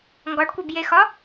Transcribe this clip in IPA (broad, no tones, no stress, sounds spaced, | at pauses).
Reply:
ŋ ɡ ɒ ɖ kʷ e b j e x ɒ